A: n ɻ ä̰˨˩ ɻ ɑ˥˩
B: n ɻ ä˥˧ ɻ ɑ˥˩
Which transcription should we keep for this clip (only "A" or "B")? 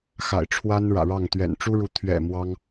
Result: A